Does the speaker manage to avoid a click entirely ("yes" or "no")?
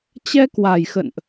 yes